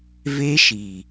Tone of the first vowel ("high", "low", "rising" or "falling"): high